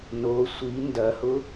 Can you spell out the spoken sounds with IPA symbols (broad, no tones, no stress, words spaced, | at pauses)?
no sʷi ndɐhʊ